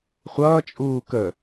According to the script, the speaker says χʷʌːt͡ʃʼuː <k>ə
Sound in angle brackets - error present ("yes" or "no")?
no